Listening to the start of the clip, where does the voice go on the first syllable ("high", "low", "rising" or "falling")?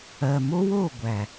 low